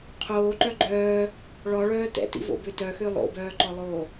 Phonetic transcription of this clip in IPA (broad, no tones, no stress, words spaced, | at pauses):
qʰoːǃœ ɡ͡ǃœː | ɭɔɭœː tɛ̰tḭvo̰bø tœxø lˠo̰bœːǃɔlˠoː